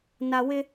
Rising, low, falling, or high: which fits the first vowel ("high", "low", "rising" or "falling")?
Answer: low